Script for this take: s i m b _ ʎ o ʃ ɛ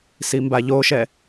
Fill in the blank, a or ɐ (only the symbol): a